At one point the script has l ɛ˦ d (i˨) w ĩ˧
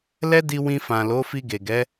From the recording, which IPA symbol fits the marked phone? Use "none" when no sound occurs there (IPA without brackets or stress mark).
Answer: i˧